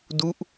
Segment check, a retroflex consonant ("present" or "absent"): absent